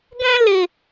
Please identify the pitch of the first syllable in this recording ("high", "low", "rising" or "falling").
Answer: high